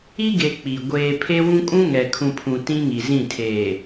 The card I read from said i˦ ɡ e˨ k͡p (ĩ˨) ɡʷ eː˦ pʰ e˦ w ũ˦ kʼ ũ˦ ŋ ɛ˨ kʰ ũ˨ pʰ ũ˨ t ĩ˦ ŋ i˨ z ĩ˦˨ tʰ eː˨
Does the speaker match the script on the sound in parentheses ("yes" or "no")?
no